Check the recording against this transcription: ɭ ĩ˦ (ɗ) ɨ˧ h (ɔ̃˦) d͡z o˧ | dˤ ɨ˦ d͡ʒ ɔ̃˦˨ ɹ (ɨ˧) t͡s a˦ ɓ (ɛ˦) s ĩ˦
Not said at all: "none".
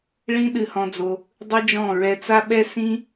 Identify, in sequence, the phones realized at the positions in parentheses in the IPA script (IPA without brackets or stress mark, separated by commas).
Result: ɗ, ɔ̃˧, ɛ˧, ɛ˦